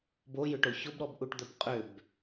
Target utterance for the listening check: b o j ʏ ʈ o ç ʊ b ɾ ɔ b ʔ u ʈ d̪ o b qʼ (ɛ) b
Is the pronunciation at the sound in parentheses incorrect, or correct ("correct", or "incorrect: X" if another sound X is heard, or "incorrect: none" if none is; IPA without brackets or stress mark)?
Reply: incorrect: ʏ